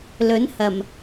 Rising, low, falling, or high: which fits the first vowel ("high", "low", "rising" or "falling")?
rising